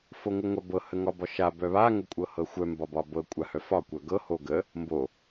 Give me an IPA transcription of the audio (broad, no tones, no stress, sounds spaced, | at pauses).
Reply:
f o ŋ ɤ ŋʷ a b ɤ h ə ŋ ɒ b ɒ ʃ a b œ β a ŋ ə kʷʼ ɤ h ɤ xʷ œ m b ɒ b ɒ b ɤ kʷʼ a h œ f ɒ kʷ œ ɡ ɤ h o ɡ ə | m b o